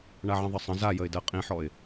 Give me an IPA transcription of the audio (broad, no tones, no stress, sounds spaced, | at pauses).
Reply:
ɳ a ʕ ə̃ ðˤ ɘ sˤ ə̃ z a j ə ɪ̯ d ɜ qʼ ĩ ħ ɔ ɪ̯